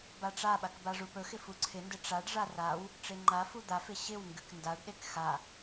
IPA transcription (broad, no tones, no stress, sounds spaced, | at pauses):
b a ʈ͡ʂ a ɓ a k b a ʐ u p ɵ x ɪ f u ǀʰ ɪ n d ɪ ʈ͡ʂ a ɖ ʐ a r a w | ʈ͡ʂ e ŋ͡ǃ a f u d̪ a f ɪ ɕ ɪ w ŋ ɡ ɨ k n d a ɖ ɗ e k x a